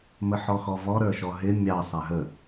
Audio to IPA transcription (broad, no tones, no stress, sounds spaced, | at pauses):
m ə ħ ɔ x ɔ v ɔ ɾ ə˞ ʃ ɔ ɦ ɪ mʲ ɑ sˤ æ ɦ ə